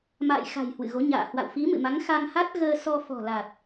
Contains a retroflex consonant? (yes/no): no